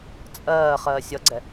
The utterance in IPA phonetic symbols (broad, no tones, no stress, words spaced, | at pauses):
t͡sʼɜː χɜːsʲʌɡ͡ǀɛ